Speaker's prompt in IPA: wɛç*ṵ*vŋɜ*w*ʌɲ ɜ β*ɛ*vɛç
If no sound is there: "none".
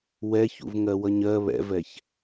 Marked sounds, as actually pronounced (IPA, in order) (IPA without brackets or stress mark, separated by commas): ṵ, w, ɛ̰